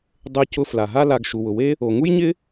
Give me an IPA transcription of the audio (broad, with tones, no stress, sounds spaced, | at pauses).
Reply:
dˤ e˧ c ʊ˧ f l a˩ ɦ a˥ l a˧ ɡ ʃ u˩ w ʊ˩ w e˥ | o˩ ŋ u˥ j ɲ ɪ˥